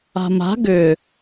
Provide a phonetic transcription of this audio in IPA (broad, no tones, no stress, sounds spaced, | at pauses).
a̤ m a̤ ɡ ʏ